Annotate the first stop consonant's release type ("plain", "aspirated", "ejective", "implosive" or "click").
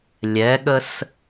implosive